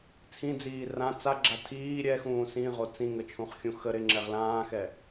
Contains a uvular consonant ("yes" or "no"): yes